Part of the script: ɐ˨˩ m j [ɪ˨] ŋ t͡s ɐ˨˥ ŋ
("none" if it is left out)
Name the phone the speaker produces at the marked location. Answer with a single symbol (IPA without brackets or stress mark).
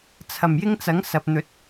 ɪ˥